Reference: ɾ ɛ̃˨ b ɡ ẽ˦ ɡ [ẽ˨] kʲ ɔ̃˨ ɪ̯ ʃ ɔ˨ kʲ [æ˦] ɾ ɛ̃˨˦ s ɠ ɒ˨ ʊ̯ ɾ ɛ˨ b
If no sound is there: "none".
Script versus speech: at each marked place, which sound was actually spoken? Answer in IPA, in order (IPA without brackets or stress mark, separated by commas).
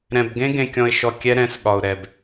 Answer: ẽ˨, ɛ˦